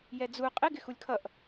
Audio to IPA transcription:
j ɛ d͡z u qʼ ɪ ɡ ɪ x u lʲ kʰ ʌ ʔ

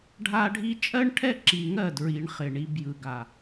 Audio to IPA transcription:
ɖʱ a˦ ɖʱ i˦ t͡ʃʼ ɜ˦ ɳ ʈʰ ɛ˦ ǁ i˨ ŋ ɜ˦˨ d ɹ i˨ ɳ χ ɪ˨ ɳ i˦ b j ɯ˨ ɡ a˨

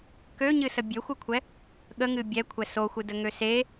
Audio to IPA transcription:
k ø ɲ ɨ s ə bʲ ø xʷ ɨ kʷʰ ɛ | ɠ ə ŋ ɨ bʲ ɛ kʷʰ ɛ s o xʷ ɨ d ə ŋ ø s e

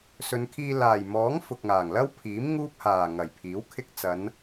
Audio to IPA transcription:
s ɵ˨˧ n kʰ iː˧ l aː˨˩ j m ɔː˨˥ ŋ f ʊ˨ k̚ ŋ aː˨˩ ŋ l ɐ˥ w pʰ iː˨˥ m ŋ uː˥ p̚ h aː˨˩ ŋ ɐ˨˩ j pʰ iː˨˥ w kʰ ɪ˧ k̚ t͡s ɐ˨˧ n

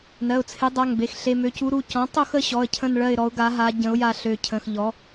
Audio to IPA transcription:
n ɜ˩˧˩ ʊ̯ t͡sʰ e˩˥ dˤ a˩˧˩ ŋ b e˩˧˩ x ɬ e˩˧˩ m ø˩˥ c u˩˥ ɾ u˩˧˩ c ɔ̃˩˥ tˤ o˦˨ x ə˦˨ ɕ ɔ˩˧˩ ə̯ cʰ ə̃˦˨ n ɭ ɜ˦˨ ɪ̯ ɾ ɔ˩˥ ʊ̯ ɡ a˩˥ ɦ a˩˥ ɟ ə̃˩˥ ʊ̯ j a˦˨ ɬ ø˩˧˩ cʰ ə̃˩˧˩ x ʎ ɔ˩˥

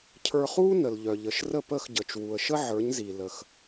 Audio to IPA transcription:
cʰ ə˞˧ χ uː˥ n ə˩ l ʎ œ˩ ʎ ə˩ ʃ r ə˥˩ p əː˥˩ x ɟ əː˩ t͡ʃ w u˩ ə̯ ʃ ə˥ ʕ ə˞˩˥ ɲ z i˩ l ə˩ x

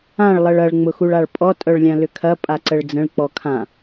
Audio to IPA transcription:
ã ɭ lˠ ə ɭ ɐ ɭ ŋ͡m ʊ x u ɭ a ɭ pʼ ɔ tʼ œ ɭ lʲ ã l ʏ kʰ ɐ pʼ a ǀ ə ɭ d͡z ə̃ ɭ k͡p ɔ kʰ ã

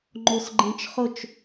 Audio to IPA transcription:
ŋ͡ǃ o s ɡ͡ǃ ẽ t͡ʃ χ ʊ t͡ʃ

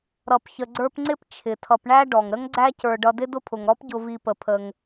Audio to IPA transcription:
ɾ ʌ˨ p ç ə˨ ɡ͡ǀ ə˞˦ p ŋ͡ǀ ɪ˥ p t͡ʃʰ ɪ˩ tʰ ʌ˨ p ɳ æ˥ ɖ ɔ˩ ŋ ɾ ə˥ ŋ ɡ͡ǀ æ˦ c ə˞˨ ɖ ʌ˨ d ɪ˦ d ʊ˦ pʰ ʊ˩ ŋ ɾ ɔ˥ p ɟ ʊ˨ v i˨ p ə˩ pʰ ə˩ ŋ

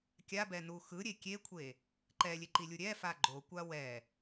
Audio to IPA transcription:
kʲ a b ɛ n u x ɯ ɾʲ e kʲ e kʷʰ e | ǃ ɛ lʲ e ǃ i lʲ u ɾʲ ɛ f a ɡ͡ǃ o kʷ a w ɛ

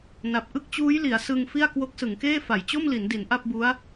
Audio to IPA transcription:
n a˨˩ p̚ ʔ ɯ˥˩ k̚ t͡ɕ uː˦˥ j l i˩˦ a̯ s ɯ˧ ŋ f i˥˩ a̯ k w o˦˥ k̚ s ɯ˩˦ ŋ k eː˥˩ f a˩˦ j t͡ɕ o˥˩ m l i˩˦ n d i˩˦ n ʔ a˥˩ p̚ b u˦˥ a̯

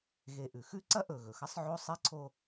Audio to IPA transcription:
ɣ e˨ ʔ ʉ˩ x ʉ˥ ǀ ɐ˥ ʔ ɵ˨ ɣ ɵ˩ x ɐ˦ sˤ ʕ o˥ sˤ i˥ ǀʰ o˥

